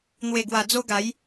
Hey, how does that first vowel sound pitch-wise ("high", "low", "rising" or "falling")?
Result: low